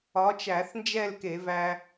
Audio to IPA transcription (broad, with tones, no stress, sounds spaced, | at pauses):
ɒ˨˥ t͡ʃ æ˧˩˧ θ n d͡ʒ ɛ˥˧ l k e˧˩˧ v æ˥